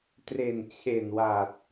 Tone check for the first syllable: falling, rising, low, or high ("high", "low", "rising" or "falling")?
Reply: low